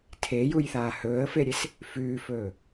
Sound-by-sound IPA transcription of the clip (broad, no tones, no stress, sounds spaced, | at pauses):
tʰ e j u j θ aː h ɵː ə̯ f e ɾʲ e s | f ʉː f ɵː